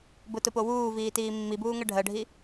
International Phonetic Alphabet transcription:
b ʊ t ʊ p o w uː v iː t iː mː i b uː ŋ ɜ ɖʱ ɜ ɖʱ i

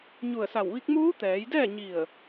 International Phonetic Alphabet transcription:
ɲ u˧˩ ə̯ s a˧˩ w ʋ i˧˥ k̚ m uː˧˥ t̪ ɛː˩˧ j d ɛː˥˨ ɲ i˧˩ ə̯

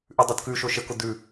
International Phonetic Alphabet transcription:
ʔ ʉ dˤ u d k ʉ ʃ o ʃ ə k ʊ d ʉ

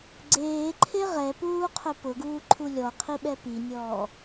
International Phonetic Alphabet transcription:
ɡ͡ǀ eː ǃʰ e ʁ ɛ p uː qʰ ʊ p ʊ ɡ uː ǃʰ u lʲ ɔ qʰ i ɓ ɛ p i nʲ ɔː

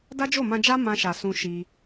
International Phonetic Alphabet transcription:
d a˦ d͡ʒ o˦˨ m ã˧ d͡ʒ a˦ m ã˧ ʃ a˨ s ũ˧ ʃ i˧

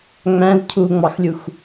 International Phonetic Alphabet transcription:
ŋ͡m æ̃ z cʰ u ŋ͡m ɑ x lʲ u x

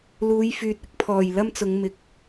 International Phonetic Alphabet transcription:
l uː˨˧ j f yː˨ t̚ ɪ˨˥ k̚ pʰ ɔː˨˩ j l ɐ˥ m t͡s ʊ˨˧ ŋ m ɪ˨ k̚

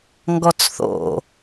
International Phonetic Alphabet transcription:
ŋ ɡ ɔ t͡s θ o̰

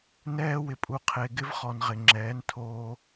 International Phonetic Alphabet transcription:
n ɛː˦ w ɪ˨ pʼ u˨ qʰ e˨ ɡ ɪ˦ v χ ɔ˨ n ʁ ɪ˨ ŋ͡ǁ ɛː˨˦ n tʰ oː˦

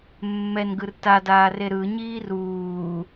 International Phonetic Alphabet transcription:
mː ɛ n ɡ ɯ r t a d aː r e ɾ ɯ ɲ iː r uː

